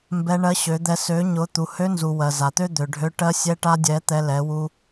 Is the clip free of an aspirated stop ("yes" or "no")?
yes